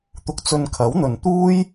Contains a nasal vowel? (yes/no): no